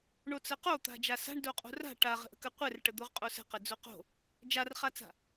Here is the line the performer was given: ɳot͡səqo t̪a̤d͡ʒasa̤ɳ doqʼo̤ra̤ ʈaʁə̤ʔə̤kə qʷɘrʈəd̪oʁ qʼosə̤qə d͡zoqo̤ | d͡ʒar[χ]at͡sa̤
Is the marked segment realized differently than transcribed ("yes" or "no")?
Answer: no